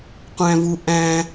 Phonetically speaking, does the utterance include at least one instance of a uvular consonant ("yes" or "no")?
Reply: yes